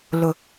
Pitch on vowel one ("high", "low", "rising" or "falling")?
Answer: low